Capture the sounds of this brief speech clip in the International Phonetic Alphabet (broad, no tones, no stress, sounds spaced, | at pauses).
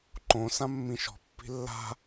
ǃ õ s ã mː ĩ ʃ ɔ̤ pː i̤ lː a̤